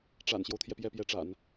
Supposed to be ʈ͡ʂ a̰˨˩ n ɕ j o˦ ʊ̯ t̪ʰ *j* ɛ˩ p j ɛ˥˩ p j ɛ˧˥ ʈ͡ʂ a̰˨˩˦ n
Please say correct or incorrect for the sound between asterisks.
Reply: correct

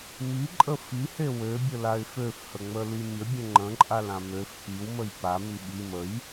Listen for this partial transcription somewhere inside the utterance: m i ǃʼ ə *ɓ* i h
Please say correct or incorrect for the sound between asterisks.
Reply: incorrect: f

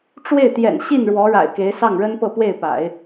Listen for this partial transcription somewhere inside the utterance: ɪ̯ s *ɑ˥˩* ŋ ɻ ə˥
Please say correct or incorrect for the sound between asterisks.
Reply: correct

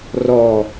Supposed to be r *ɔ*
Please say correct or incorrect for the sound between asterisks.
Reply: correct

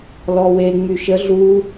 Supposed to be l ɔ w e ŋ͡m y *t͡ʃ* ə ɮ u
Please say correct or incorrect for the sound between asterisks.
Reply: incorrect: ʃ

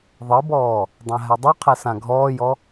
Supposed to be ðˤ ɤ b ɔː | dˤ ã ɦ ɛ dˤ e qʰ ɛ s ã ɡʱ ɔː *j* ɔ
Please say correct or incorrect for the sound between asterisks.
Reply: correct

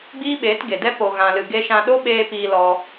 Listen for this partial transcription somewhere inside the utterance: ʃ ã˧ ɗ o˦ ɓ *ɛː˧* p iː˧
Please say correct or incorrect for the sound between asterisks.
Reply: incorrect: eː˧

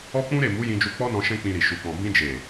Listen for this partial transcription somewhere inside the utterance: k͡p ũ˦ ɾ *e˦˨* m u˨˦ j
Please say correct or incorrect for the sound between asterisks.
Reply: correct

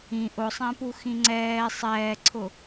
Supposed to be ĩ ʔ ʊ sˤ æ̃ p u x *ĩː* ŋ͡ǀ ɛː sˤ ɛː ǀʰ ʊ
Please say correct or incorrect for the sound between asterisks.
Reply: incorrect: ĩ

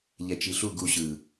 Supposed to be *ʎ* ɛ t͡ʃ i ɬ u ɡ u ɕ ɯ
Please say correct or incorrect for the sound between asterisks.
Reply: correct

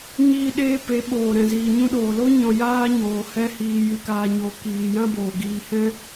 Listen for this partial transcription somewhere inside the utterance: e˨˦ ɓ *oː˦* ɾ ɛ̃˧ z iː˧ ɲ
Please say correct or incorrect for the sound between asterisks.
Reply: incorrect: oː˨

